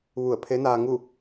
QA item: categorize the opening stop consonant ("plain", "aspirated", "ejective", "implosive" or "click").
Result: aspirated